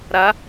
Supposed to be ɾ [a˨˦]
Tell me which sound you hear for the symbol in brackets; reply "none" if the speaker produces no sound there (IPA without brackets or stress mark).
a˨˦